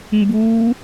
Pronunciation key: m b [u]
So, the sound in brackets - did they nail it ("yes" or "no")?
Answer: yes